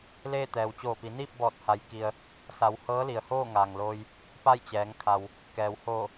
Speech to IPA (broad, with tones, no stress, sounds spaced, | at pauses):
l eː˥˨ t̪ ɛː˩ w t͡ɕ oː˧˩ p i˩˧ n iː˥˨ p̚ b ɔː˧˩ t̚ h a˩˧ j k i˩ ə̯ | s a˩˧ w h ɤː˧˥ l i˩ ə̯ h oː˥˨ ŋ aː˩ ŋ l oː˩ j | p a˥˨ j t͡ɕ ɛː˩˧ ŋ kʰ a˩ w | k ɛː˩ w h oː˧˩